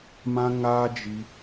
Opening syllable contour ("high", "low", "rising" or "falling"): high